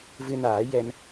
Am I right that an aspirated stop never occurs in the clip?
yes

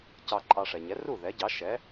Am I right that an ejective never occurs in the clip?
no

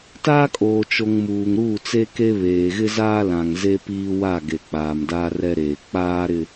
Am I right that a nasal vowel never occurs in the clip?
no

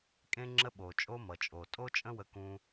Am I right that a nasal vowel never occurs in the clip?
no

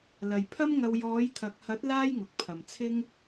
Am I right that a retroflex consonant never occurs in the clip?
yes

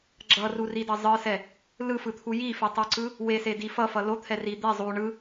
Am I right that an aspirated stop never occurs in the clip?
no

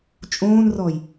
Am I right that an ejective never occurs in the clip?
no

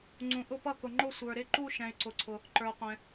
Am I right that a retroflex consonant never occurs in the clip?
yes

